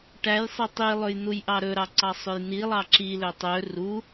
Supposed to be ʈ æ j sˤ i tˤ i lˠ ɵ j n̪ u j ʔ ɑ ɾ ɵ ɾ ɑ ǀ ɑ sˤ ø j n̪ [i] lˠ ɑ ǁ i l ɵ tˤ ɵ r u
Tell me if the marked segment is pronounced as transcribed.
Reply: yes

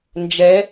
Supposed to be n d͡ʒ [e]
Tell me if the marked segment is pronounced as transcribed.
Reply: no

